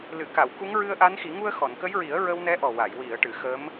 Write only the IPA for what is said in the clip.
l ɨ˨˩˨ k a˨˩˨ w k u˧˥ ŋ ɹ ɨ˧ ə̯ ʔ a˧˥ n x i˨˩˦ ŋ u˧ ə̯ x ɔ˨˩˨ n k ə˧˥ j ɹ i˨˩˦ ə̯ ɹ ə˧ w n ɛ˧˥ ʔ ɔ˨˩ w a˨˩˨ j w i˨˩˨ ə̯ ʈ ɨ˨˩˨ x ə˧˥ m

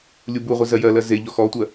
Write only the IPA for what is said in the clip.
lʲ u b u ʁʷ e z ɜ j ɜ l ɜ z e ʎ ɔ x ɔ tʷ ɜ

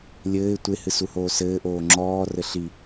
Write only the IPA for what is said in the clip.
lʲ ɘː ɪ̯ tʷ e h ɨ s u h oː s ɘː ʔ oː ŋ͡ǁ ɔː r ɘ ɬ i

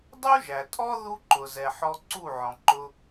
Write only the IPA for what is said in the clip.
dˤ u˦ ʒ æ˨ tʼ ɔ˦ ð u˦ ǃ ʊ˨ z ɛ˨ ħ ɔ˧ ǀ u˦˨ ʕ ɔ̃˨ ǃ ʊ˧

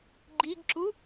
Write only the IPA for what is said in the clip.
ɡ͡ǃ i ɡ ǁ u

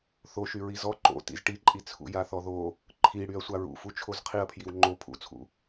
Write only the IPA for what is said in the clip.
θ o ʃ y ɹ i z ɔ ǃ o̰ t ḭ z ʈ i ǃʼ i t͡sʰ ṵ j a θ ɔ ð o | ǃʰ i ɽ y ɐ̯ sʷ a ɹ ṵ f u t͡ʃʰ o z qʰ i ɐ̯ pʰ j i w ŋ͡ǃ o pʰ ṵ t͡sʰ ṵ

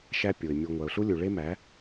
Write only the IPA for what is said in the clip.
ʃ æ˦ pʲ o˨ ɪ̯ mʲ o˨ ŋʷ æ˨ ʊ̯ ɬ u˦ lʲ u˨ ɭ e˦ m æ˨˦

